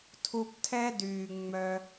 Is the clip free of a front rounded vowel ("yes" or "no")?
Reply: no